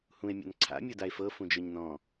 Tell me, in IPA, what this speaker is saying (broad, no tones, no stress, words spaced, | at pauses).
hũe̯mʲa̰n ǀʰa̰mʲodae̯ fɤfũd͡ʒɤɲ nɔ̃